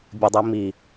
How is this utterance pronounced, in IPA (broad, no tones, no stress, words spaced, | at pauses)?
bʲɘdˤimi